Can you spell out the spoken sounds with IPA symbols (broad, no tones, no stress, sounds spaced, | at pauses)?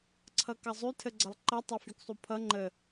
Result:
ǀʰ ʌ k ʌ zˤ y tʰ ə ɡ͡ǀ ʌ lˠ ǃ ʌ tˤ a f y k sˤ u pʰ ʌ ŋ͡ǃ ə